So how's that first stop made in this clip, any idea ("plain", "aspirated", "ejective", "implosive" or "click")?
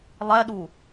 implosive